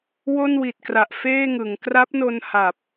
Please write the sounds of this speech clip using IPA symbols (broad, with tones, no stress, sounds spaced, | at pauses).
w o˥˩ n w i˨˩ t̚ k r a˨˩ ʔ f eː˥˩ ŋ ɯ˩˦ ŋ k r a˦˥ p̚ n o˧ n h a˨˩ p̚